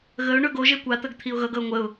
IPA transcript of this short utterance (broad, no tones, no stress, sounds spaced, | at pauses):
ɣ ə ʊ̯ ɳ ɵ ɡ o ʒ e kʷ a t̪ ə ɡ t̪ʰ i ʊ̯ ɣ ʌ ɡ ʌ ʊ̯ ŋʷ ə ʊ̯